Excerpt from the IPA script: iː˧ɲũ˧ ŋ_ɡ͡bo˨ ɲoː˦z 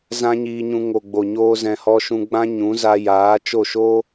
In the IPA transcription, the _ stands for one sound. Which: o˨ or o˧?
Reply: o˨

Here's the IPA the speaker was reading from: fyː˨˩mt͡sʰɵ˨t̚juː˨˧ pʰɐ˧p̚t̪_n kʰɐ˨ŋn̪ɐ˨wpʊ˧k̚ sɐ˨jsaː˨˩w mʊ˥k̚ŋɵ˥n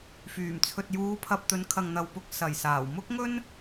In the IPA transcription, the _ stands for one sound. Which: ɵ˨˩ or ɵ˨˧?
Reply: ɵ˨˧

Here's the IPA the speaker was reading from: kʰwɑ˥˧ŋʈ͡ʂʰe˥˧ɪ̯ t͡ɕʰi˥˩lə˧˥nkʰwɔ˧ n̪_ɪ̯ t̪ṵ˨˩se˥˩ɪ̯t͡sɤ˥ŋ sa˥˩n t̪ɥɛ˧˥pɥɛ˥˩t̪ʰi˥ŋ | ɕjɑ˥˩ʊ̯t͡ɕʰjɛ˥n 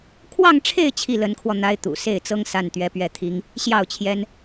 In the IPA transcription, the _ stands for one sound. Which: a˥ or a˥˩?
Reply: a˥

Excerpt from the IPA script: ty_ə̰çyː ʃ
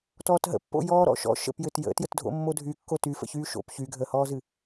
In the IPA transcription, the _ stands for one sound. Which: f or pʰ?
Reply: f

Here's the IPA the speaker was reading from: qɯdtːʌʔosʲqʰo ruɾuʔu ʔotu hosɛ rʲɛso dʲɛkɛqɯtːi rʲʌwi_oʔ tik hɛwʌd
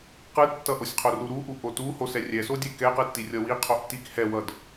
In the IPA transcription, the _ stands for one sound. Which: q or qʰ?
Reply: qʰ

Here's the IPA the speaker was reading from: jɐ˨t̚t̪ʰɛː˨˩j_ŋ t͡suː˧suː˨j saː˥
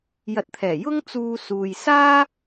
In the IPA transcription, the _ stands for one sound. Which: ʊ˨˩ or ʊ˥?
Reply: ʊ˥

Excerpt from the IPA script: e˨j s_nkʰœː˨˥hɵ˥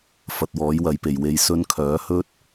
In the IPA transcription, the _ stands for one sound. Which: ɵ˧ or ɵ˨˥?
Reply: ɵ˧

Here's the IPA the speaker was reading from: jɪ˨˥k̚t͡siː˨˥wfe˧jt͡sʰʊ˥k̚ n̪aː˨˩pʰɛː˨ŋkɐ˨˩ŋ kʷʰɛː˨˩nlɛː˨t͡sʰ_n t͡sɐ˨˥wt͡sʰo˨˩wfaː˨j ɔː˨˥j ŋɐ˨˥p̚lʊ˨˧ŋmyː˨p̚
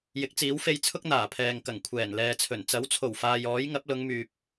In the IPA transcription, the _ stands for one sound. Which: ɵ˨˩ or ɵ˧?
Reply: ɵ˨˩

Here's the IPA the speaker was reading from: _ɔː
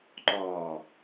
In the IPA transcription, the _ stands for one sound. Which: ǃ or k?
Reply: ǃ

